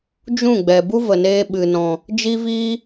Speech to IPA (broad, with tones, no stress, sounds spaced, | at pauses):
d͡ʒ ũ˦˨ ɡ͡b ɛ˨ b u˦ v ə˨ n eː˧ ɓ ɨ˧ n ɔ̃˧ | d͡ʒ i˦ v iː˦